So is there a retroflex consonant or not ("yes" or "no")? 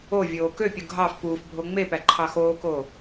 no